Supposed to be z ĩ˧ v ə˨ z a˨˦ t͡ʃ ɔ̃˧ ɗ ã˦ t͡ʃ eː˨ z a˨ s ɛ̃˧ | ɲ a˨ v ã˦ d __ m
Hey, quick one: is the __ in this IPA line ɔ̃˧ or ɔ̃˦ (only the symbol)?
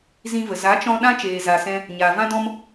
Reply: ɔ̃˦